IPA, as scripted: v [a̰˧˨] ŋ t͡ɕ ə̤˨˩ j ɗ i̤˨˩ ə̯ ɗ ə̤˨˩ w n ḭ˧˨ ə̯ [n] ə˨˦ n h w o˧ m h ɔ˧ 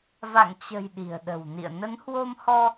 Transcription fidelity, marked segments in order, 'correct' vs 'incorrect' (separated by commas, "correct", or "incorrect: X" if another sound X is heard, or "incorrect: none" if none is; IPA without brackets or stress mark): correct, correct